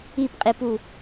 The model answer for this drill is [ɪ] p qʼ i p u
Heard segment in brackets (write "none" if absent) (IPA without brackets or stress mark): i